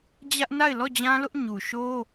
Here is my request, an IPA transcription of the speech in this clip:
d͡ʑ ä˦ ʔ n a˦˨ ɪ̯ l ɔ˦˨ d͡ʑ ã˦ l ʊ˦ ʔ ɲ u˨ ʃ o˦

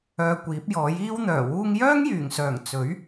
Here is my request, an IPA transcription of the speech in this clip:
œː˧ kʷ iː˨˥ p̚ j ɔː˨˥ j iː˥ w n̪ œː˨˩ w uː˧ ŋ j œː˥ ŋ j yː˨˩ ŋ s œː˨˩ ŋ t͡s ɵ˨˥ ɥ

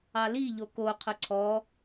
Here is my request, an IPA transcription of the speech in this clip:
ɑ l i ʎ o k o qʰ ʊ ǀʰ ɔ

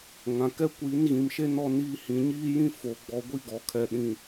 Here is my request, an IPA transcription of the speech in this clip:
ŋ ã˨ k ɛ˦ kʷ i˨˦ n ɣ ĩ˨ m ʃ e˦ n ɔ˦ n iː˦ h ĩ˨ ɲ iː˦ j ĩ˦ f o˨ ɡ͡b ɔ˨ ɡʷ i˦ ɡ ɔ˨ kʰ ɛ˨ ɗ ĩ˨

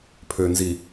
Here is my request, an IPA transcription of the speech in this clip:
pʰ ø˨ n z i˨

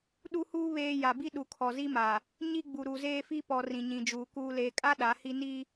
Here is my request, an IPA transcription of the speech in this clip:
ɗ u˦ h uː˦ β eː˦ j a˨ b i˦ ɗ u˨ kʰ ɔ˨ z i˦ m a˨ | ɲ i˦ ɡ͡b u˨ ɾ u˨ z eː˦ f i˦ p ɔ˨ r ĩ˨ ɲ ĩ˨ d͡ʒ uː˨ k uː˨ l eː˨ kʼ a˦ ɗ a˨˦ h i˦ n i˦

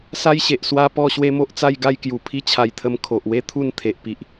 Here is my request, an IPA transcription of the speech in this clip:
s a˦ j ɕ e˨ ʔ s w a˦ p ɔ˥˧ ɕ w e˦ m o˦ ʔ t͡s a˥˧ j ɡ a˥˧ j k j u˨˩ pʰ i˥˧ t͡ɕʰ a˧ j t̪ʰ ə˧ m kʰ o˨ ʔ w e˦ t̪ʰ u˥˧ n t̪ʰ e˨ ʔ p i˨ ʔ

